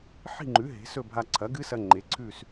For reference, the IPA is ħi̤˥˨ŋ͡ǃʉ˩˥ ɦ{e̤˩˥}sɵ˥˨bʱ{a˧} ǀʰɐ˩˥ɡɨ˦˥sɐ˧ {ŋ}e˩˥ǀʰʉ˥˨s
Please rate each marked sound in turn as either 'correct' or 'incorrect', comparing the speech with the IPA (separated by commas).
correct, correct, incorrect